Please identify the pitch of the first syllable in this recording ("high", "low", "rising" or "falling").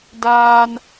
low